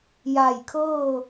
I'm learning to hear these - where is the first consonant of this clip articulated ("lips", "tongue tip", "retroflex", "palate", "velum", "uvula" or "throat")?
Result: palate